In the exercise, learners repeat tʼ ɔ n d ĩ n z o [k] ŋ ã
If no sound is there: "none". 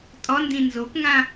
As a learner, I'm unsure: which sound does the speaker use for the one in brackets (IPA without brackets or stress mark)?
k